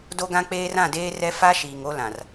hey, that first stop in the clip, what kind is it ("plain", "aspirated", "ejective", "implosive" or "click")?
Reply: plain